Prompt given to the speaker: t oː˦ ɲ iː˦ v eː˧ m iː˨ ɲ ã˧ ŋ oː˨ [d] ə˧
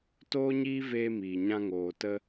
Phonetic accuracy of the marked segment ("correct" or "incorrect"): incorrect